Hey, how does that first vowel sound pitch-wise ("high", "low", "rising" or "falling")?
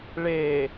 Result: low